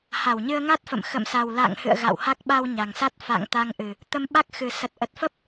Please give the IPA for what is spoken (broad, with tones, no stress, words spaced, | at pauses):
ha˧˩wɲɨ˧ə̯ŋa˦˥t̚fə̰˧˨m xə̰˧˨m sa˨˩wla̰ː˧˨ŋhɨ̰˧˨ə̯ ɣa̰˧˨wha˦˥k̚ ɓa˧w ɲa˨˩ŋsa˦˥t̚ fa̰˧˨ŋ t̪a˧ŋʔɨ˨˩ | t̪ə˧mɓa˦˥k̚xɨ˨˩ sə˨˩t̚ʔə˨˩t̚fə˦˥p̚